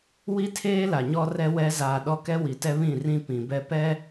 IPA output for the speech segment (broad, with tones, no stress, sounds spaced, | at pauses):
w i˦ tʰ eː˦ l a˨ ɲ ɔ˦ r ɛ˦ w ɛ˦ z aː˨ ɗ ɔ˦ k ɛ˦ w i˨ t ɛ˦ β ĩ˦˨ r ĩ˦ p ĩ˨ b ɛ˦ p ɛ˦